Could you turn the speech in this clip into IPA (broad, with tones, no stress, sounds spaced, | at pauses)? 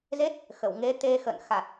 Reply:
z e˦˥ t̚ | x ə˧˩ w ŋ e˨˦ t̪ e˧ x ə̰˧˨ n x a˨˩ t̚